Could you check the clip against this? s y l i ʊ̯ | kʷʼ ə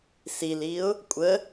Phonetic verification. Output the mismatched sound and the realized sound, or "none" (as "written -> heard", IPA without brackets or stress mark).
y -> i